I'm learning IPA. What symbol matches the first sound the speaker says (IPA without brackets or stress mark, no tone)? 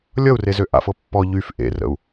lʲ